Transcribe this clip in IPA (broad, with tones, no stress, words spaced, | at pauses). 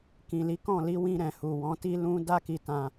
kĩ˨li˨˦kɔ̃˦˨ li˨˦wĩ˧ɾɛ̃˨ hu˨wɔ̃˨˦ ti˦lũ˦ da˦ki˧tã˧